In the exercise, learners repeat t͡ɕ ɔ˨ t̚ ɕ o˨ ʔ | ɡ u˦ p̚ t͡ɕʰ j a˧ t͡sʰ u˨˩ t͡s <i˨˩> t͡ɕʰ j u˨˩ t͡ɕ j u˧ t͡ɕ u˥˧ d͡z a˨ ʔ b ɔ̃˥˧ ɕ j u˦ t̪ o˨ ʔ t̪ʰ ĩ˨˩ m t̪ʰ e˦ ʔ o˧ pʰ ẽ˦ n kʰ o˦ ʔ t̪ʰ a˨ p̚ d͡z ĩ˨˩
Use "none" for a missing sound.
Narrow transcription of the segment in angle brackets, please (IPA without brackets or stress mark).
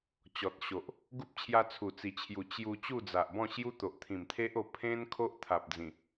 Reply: i˨˩